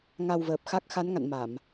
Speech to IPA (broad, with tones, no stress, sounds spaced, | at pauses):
ŋ a˧ w v əː˨˩ p̚ x a˦˥ k̚ x a˨˦ n ŋ a̰˧˨ n m a˧˩˨ m